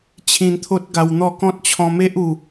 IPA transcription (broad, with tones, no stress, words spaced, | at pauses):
t͡ɕʰĩ˧nt̪ʰo˦t̚ ɡa˧wn̪ɔ˥˧ kɔ̃˦t̚t͡ɕʰɔ̃˧me˦ʔu˨˩